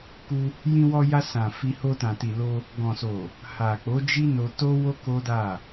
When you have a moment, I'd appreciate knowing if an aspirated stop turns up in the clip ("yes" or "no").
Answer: no